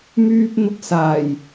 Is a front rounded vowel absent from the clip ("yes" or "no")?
no